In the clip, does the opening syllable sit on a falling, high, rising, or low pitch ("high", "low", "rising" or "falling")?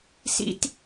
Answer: high